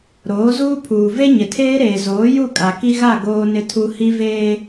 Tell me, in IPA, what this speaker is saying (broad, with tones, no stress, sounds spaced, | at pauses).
ɾ oː˨˦ z uː˦ pʰ uː˨ v e˦ ɲ ɪ˨ tʰ eː˦ ɾ eː˨ z oː˨˦ j u˦˨ kʼ a˨ k i˦ ɣ a˦˨ ɡ oː˦ n ɪ˦ tʰ u˦ h i˦ v eː˦